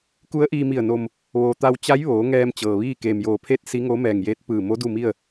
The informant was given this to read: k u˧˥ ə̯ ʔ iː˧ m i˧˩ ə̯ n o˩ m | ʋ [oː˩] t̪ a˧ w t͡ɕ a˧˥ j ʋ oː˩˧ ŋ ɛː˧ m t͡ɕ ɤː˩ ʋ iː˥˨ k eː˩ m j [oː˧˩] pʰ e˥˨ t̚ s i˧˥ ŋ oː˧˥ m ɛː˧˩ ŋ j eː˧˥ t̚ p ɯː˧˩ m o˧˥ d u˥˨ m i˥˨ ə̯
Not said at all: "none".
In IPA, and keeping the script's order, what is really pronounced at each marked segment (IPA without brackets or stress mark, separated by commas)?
oː˩, oː˧˩